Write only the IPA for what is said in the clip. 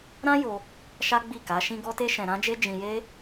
ɾ ã˦ j o˧ | ʃ a˦ ɡ͡b i˦˨ k a˨˦ ʃ ĩ˦ ɡ ɔ˦ t e˦ ʃ ɛ̃˧ ɾ ã˦ d͡ʒ e˦ d͡ʒ ĩ˧ j e˦

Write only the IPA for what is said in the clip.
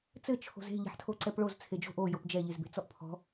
t͡s ɘ t͡ʃʰ o̤ z e̤ ʎ e̤ ħ tʰ o ǀ ɛ p ɭ o z t͡sʰ e d͡ʒ o̤ ʔ o j o p d͡ʒ ɛ ʎ e z b e̤ t͡s ɔ ʔ pʰ ɔ̤

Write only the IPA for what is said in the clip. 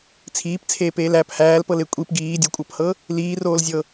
t͡sʰ iː p t͡sʰ eː p eː l æ p h æː l p ɤ l e kʷʼ i p ɡ iː dʲ o kʷʼ ɤ p h ɤ | l iː r oː l zʲ ɤ

